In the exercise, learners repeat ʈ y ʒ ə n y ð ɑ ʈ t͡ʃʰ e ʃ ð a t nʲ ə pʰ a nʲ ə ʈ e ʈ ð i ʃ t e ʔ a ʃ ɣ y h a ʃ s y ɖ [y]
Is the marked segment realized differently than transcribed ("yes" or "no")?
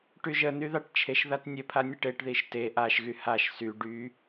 no